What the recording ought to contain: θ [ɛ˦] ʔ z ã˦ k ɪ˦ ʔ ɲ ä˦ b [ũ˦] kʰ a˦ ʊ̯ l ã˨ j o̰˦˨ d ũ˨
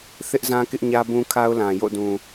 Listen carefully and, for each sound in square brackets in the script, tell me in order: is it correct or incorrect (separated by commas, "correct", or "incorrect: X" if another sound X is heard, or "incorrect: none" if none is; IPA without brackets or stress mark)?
incorrect: ɪ˦, correct